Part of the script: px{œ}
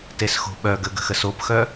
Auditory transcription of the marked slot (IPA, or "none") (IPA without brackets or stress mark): œ